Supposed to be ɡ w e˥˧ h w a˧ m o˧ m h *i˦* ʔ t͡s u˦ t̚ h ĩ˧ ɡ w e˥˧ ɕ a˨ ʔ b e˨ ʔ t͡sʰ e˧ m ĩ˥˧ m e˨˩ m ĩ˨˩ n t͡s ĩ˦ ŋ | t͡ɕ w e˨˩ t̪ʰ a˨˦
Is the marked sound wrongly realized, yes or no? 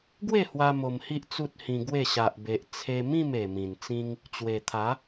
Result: no